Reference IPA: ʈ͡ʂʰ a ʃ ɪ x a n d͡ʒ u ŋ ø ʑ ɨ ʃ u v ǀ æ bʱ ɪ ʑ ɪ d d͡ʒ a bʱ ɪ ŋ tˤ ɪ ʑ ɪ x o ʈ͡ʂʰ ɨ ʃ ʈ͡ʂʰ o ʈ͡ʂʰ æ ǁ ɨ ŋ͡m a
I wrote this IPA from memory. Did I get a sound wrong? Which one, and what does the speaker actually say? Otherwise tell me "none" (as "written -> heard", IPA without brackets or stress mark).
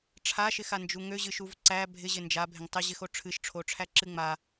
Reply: d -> n